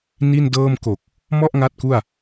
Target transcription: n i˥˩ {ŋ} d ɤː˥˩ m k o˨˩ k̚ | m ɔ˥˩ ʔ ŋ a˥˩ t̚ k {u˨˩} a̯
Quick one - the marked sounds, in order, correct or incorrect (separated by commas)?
incorrect, incorrect